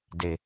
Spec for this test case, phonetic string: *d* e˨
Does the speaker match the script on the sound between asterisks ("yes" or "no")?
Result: yes